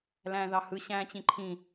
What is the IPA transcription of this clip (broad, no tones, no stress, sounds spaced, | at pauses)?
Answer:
l æ̃ː ð ɑ h ɯ ɕ æ̃ː t͡ɕ ĩ ǃʰ ĩ